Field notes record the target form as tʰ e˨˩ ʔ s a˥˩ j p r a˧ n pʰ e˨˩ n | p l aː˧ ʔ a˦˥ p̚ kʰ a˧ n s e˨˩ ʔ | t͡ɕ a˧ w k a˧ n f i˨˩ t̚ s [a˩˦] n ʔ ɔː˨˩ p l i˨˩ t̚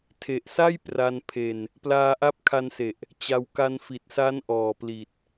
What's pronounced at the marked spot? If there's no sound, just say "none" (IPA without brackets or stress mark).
a˦˥